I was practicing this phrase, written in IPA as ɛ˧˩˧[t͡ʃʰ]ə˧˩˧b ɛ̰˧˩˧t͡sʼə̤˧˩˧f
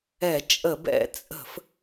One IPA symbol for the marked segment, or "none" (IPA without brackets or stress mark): t͡ʃʼ